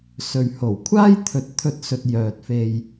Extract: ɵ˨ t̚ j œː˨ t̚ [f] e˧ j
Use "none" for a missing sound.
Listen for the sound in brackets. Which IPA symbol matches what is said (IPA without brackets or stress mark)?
f